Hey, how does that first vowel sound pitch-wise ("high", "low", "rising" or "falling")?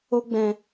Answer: high